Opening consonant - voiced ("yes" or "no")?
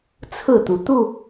no